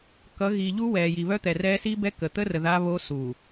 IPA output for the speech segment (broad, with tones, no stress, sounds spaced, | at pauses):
k ʌ˨˦ ɣ i˨ ʎ u˦ w ɛː˨ j i˨ β œ˦ t̪ ɛ˨ r ɛː˦ s i˦ b ɛ˦ k ə˨ t̪ ə˦ r ə˨ ð a˦ β o˦ s u˨